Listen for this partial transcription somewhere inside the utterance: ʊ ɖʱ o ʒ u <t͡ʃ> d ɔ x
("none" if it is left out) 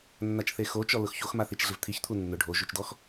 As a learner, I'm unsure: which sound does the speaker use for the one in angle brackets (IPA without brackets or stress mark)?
t͡ʃ